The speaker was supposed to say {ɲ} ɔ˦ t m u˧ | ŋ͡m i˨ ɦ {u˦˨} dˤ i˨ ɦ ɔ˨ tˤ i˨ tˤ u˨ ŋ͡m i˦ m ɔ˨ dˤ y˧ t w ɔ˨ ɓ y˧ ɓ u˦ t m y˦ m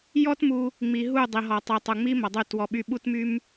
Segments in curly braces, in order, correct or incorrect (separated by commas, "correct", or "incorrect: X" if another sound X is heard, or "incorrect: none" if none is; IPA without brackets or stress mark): incorrect: j, correct